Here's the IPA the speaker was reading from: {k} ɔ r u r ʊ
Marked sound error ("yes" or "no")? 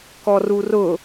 no